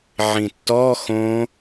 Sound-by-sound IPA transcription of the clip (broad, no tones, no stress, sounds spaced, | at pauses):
ʕ ĩ tː ɔ x õ